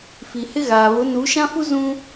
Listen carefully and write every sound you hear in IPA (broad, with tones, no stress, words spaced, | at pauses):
fi˨hɪ˦ɣaː˨ βʊ˨˦nu˨˦ʃã˦fu˦ zũ˦